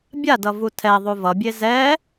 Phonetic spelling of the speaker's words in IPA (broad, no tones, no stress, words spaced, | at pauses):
bʲadʌ vutʰɛ ðˤuvʌbʲe zɛ